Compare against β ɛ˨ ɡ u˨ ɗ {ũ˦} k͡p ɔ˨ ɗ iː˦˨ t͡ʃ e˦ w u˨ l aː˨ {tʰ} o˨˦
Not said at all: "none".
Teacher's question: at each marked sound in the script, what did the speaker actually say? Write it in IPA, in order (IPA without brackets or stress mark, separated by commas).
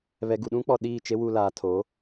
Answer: ũ˦, tʰ